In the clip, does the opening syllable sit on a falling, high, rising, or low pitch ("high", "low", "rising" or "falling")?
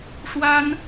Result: high